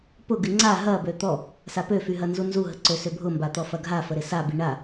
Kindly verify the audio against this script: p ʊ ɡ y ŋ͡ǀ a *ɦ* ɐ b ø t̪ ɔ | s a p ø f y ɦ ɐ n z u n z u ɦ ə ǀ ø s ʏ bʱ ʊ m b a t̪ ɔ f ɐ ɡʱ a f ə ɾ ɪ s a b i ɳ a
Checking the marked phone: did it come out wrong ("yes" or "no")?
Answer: no